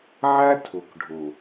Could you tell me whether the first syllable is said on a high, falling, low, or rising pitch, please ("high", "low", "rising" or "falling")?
high